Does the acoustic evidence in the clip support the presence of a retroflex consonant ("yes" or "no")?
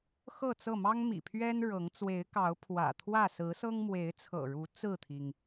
yes